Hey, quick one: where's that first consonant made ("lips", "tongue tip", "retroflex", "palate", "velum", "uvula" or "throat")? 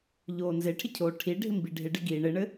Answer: palate